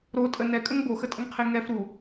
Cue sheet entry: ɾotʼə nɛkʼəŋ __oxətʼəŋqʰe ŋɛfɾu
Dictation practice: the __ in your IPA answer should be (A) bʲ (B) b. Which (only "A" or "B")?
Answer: B